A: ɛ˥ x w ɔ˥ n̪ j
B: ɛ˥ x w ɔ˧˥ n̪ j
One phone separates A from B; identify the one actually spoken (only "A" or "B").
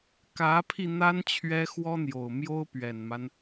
A